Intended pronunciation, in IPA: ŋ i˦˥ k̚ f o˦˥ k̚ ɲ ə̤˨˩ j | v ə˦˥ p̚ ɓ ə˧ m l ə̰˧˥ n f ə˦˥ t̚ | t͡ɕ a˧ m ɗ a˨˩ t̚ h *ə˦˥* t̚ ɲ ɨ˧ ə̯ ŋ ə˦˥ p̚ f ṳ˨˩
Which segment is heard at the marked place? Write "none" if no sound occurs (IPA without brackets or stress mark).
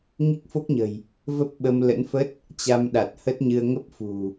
ə˦˥